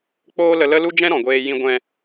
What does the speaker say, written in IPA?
k͡poː˦lə˧lə˦lu˦ d͡ʒɛ̃˦ɾɔ̃˨ɡʷeː˧ jĩ˦ ɡʷɛ̃˧

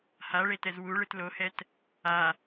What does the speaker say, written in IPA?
haɭetɛz wuɭɯt lohɛt | a

